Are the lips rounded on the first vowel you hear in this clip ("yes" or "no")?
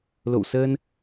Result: yes